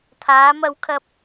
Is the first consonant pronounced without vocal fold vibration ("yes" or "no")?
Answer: yes